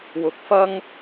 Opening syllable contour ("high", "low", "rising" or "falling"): rising